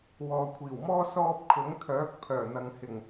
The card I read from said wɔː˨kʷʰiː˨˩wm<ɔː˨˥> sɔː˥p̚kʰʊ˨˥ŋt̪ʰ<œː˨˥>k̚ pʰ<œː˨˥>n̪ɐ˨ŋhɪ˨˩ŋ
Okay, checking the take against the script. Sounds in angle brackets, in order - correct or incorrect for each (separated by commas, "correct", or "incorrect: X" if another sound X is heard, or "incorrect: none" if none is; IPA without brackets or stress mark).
incorrect: ɔː˥, correct, incorrect: œː˨˩